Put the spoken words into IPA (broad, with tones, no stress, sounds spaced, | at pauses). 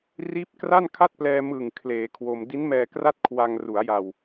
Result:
r iː˦˥ p̚ k r a˥˩ n kʰ a˥˩ t̚ p l ɛː˧ m ɯ˨˩ ŋ kʰ l eː˩˦ kʰ w o˧ m d i˦˥ n m ɛː˧ k r a˥˩ t̚ kʰ w a˧ ŋ r u˩˦ a̯ j a˨˩ w